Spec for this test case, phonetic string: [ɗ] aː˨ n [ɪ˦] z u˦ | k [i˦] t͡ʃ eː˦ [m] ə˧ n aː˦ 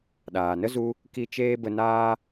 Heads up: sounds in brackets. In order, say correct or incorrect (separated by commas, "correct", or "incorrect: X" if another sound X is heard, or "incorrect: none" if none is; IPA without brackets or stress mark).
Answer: correct, incorrect: ə˦, incorrect: i˧, incorrect: b